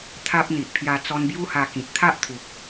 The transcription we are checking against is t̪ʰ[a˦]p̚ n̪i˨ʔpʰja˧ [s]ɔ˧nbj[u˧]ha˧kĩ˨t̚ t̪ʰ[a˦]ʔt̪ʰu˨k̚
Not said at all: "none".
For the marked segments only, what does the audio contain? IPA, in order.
a˦, t͡s, u˦, a˦

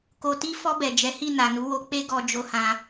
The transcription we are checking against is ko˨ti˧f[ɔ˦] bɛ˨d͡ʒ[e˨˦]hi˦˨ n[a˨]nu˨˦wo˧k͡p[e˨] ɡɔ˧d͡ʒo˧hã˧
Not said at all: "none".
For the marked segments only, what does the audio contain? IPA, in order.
ɔ˧, ɛ˨˦, a˨, e˦

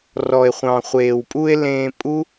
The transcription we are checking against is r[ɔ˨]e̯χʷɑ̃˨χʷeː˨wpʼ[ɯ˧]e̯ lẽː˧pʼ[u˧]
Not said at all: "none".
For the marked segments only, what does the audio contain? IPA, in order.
ɔ˨, u˧, u˦

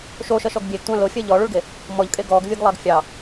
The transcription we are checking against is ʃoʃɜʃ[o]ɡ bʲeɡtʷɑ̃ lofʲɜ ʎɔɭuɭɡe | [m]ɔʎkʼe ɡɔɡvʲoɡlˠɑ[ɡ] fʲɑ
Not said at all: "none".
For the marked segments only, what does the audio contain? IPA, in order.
ɔ, m, ɡ

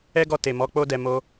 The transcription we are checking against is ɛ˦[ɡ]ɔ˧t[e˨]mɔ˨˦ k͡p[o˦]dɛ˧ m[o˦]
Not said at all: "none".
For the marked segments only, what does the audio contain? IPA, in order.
ɡ, e˨, o˦, o˦

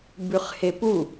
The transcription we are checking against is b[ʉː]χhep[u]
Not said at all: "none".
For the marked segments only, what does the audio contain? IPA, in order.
ʉ, u

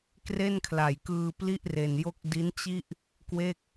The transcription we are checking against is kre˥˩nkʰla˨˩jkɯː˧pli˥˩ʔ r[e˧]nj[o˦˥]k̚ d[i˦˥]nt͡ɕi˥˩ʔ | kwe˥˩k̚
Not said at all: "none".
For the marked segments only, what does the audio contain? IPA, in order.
e˧, o˥˩, i˦˥

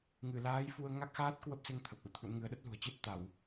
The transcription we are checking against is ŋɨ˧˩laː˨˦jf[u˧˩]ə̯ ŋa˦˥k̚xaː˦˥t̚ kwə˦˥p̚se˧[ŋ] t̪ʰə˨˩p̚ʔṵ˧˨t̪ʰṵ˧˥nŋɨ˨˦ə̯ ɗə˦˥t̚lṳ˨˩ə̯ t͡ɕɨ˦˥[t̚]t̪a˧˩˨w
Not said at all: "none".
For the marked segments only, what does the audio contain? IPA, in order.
u˧, ŋ, t̚

